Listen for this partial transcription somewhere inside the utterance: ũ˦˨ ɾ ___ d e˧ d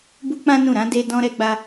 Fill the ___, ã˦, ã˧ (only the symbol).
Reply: ã˧